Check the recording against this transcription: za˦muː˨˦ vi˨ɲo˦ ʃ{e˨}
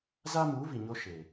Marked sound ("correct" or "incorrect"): correct